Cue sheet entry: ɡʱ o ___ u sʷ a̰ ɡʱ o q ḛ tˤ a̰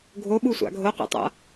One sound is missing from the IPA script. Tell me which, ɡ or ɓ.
ɓ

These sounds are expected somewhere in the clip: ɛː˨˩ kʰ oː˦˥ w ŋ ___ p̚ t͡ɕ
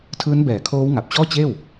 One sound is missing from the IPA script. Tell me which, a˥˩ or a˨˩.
a˨˩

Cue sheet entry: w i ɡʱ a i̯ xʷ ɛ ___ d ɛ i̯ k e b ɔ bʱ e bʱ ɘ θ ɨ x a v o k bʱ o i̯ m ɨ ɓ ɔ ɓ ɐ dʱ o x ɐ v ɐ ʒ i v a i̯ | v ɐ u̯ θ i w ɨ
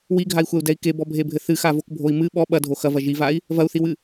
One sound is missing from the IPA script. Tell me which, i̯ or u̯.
u̯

